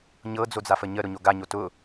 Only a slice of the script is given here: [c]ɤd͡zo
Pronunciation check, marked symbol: incorrect: ɲ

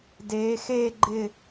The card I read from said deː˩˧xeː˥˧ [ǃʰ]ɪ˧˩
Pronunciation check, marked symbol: incorrect: ɡ͡ǃ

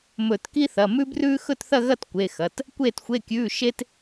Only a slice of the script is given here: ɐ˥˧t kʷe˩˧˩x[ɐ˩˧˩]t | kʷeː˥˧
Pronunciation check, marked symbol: correct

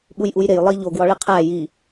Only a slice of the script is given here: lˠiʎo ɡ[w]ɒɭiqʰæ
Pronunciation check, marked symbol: correct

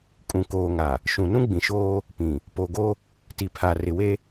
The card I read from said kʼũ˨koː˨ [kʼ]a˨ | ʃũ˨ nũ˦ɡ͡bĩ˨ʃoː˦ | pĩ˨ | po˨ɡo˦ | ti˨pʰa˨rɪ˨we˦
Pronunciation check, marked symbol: incorrect: ŋ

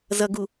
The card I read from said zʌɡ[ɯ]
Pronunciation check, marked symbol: incorrect: u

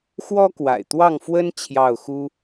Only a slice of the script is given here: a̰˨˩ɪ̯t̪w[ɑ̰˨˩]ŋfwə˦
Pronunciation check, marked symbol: incorrect: ɑ˥˨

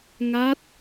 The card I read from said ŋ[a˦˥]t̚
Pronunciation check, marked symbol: correct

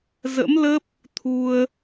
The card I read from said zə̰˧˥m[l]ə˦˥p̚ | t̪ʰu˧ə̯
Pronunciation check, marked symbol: correct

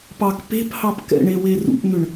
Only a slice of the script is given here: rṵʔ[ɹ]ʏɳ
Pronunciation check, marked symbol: incorrect: n̪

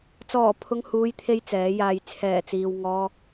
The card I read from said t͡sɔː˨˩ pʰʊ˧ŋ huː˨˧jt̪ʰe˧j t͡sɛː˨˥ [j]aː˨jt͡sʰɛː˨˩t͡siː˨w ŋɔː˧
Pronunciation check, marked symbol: correct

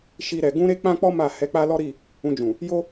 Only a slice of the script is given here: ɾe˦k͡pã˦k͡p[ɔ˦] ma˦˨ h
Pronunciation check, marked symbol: correct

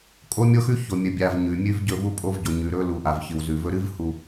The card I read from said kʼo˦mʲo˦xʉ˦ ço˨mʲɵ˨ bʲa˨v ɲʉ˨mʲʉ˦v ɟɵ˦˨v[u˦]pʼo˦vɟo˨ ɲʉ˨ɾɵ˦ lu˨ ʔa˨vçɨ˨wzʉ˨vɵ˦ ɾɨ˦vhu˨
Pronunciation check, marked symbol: correct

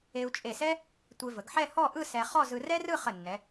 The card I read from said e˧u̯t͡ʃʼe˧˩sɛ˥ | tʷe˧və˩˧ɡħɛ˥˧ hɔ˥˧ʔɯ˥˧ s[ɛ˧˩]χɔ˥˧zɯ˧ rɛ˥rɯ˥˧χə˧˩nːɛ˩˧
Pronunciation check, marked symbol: incorrect: ɛ˧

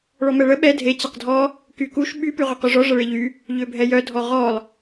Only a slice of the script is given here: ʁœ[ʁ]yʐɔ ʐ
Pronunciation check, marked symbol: incorrect: q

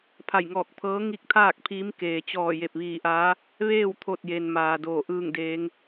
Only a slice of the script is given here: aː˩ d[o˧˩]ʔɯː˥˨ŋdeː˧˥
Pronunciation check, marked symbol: incorrect: oː˧˩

